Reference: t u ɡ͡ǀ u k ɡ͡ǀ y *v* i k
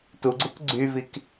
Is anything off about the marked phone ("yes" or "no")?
no